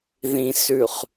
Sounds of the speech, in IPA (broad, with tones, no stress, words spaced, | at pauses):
ðĩ˨ sʉ˨χ